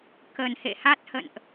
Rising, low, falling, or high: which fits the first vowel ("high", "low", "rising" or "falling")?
low